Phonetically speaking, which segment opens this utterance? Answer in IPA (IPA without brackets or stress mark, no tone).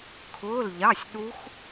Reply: kʰ